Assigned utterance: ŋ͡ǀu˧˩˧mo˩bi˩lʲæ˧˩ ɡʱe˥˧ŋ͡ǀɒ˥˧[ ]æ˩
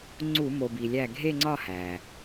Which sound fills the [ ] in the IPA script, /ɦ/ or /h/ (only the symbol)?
h